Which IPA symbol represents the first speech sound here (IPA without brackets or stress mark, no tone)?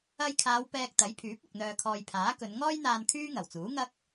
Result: ɐ